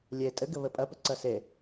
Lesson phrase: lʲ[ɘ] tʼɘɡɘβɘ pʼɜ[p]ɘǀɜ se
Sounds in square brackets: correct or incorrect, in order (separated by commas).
incorrect, correct